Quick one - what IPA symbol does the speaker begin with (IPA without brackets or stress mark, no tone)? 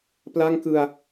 p